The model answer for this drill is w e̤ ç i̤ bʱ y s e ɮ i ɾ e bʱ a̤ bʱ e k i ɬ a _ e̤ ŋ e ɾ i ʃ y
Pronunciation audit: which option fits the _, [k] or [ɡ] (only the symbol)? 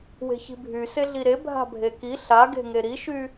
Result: ɡ